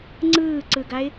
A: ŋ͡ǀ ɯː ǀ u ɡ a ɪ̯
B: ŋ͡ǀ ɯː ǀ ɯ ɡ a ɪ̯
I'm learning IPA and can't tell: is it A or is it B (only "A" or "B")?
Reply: B